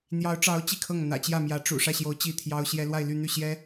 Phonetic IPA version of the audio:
n̪ j ɑ˧˥ ʊ̯ ʈ͡ʂ ɑ˧˥ ʊ̯ t͡ɕ i˥˧ kʰ ɤ˥˩ ŋ n̪ ä̰˨˩ t͡ɕ j ä˥˩ m j ä˧˥ ʈ͡ʂ ṵ˨˩ ʂ ä˥˩ ɕ j o˧˥ ʊ̯ t͡ɕ i˥˩ t̪ʰ j ɑ˥ ʊ̯ ɕ j ɛ˥ l w a˥˧ ɪ̯ l y˥˧ n̪ y˥˩ ɕ j ɛ˥

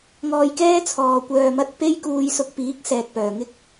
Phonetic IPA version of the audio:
ŋ ɔː˧ j k ɛː˥ t͡sʰ ɔː˨ kʷ œː˨ m ɐ˧ t̚ p e˥ j k uː˧ j s ʊ˧ k̚ p iː˨˥ k̚ s ɛː˨ k̚ p œː˨˩ ŋ ɪ˥ k̚

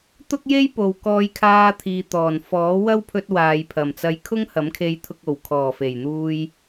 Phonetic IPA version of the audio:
t̪ ʊ˥ k̚ j e˥ j p o˨ w k ɔː˧ j kʰ aː˧ t̪ʰ iː˨ t̪ ɔː˨˩ n f ɔː˨˥ w ɐ˥ w pʰ ɵ˧ t̚ w aː˨ j pʰ ɐ˨˩ m t͡s ɐ˧ j kʰ ʊ˥ ŋ h ɐ˨˥ m kʰ e˧ j t̪ʰ ʊ˧ k̚ o˨˩ w kʰ ɔː˨˩ f e˨˩ j n̪ uː˧ j

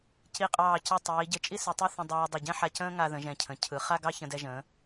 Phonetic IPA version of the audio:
c i˧˩ qʼ ɑː˧˩ c ɯ˧˩ tˤ iː˩˧ ɟ ɘ˧˩ t͡ʃʼ i˥ s i˩˧ tˤ ɘ˥˧ θ ə̃˧ dˤ ɑː˧ dˤ ɘ˧˩ ɟ ɛ̃˥ ħ a˧ c ə̃ː˥ ŋ a˧ ð ə̃˩˧ ʒ ɛ̃˧˩ cʰ ə̃˩˧ cʰ ɯ˩˧ χ a˥˧ ɡ ɑ˥˧ ç ə̃˧ d ɛ˧ ʒ ə̃ː˩˧

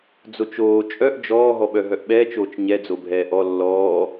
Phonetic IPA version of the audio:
d͡z o t͡ʃ oː t͡ʃʼ œ ʔ d͡ʒ ɔː ɦ ɔ ɓ œ ɦ œ ʔ ɓ ɛː t͡ʃ oː t͡ʃ ɲ ɛ d͡z o bʱ ɛː ʔ ɔ lː ɔː

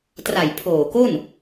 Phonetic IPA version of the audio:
t r a˨˩ j pʰ oː˨˩ k o˥˩ n

